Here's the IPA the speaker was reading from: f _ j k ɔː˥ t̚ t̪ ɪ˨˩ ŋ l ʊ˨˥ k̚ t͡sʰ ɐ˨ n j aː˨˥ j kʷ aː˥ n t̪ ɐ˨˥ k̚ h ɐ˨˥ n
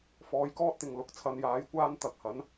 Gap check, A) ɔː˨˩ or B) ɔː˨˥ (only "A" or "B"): B